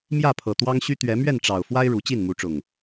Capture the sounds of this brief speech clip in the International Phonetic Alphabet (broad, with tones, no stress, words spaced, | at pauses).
mjä˥˨pʰɤ˨˩t̪wɑ˦ŋɕy˦ t̪ɥɛ˨˦mɥɛ˥˨nʈ͡ʂɑ˨˩ʊ̯fwa˦ɪ̯ ɻu˨˦t͡ɕi˥˨nmu˨˦ʈ͡ʂʊ˨˩ŋ